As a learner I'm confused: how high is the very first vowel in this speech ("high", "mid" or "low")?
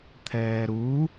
mid